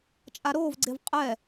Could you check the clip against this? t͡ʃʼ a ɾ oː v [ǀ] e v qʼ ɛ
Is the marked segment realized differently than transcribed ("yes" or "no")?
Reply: yes